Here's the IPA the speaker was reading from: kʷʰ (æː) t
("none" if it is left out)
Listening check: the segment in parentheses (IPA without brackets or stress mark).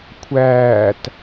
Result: æː